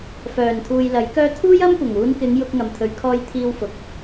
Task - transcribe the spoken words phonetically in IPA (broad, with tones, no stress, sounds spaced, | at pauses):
f œː˨˩ n t̪ʰ uː˨ j l ɐ˨˥ j k œː˧ t̪ʰ uː˥ j ɐ˥ m kʷ ɐ˨˩ ŋ uː˨˧ n k ɪ˨˧ ŋ j ʊ˧ k̚ ŋ ɐ˨ m t̪ʰ ɵ˨˧ ɥ kʰ ɔː˧ j t̪ʰ iː˧ w f ʊ˨ k̚